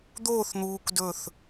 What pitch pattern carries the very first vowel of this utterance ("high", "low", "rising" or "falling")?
falling